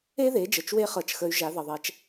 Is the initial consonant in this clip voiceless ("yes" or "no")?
no